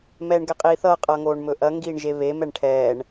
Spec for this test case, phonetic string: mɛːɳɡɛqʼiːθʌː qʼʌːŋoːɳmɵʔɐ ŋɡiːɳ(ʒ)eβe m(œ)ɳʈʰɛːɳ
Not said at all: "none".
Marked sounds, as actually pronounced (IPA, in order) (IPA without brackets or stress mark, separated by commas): ʒ, ɛ